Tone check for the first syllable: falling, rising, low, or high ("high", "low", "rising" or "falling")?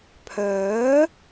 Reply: rising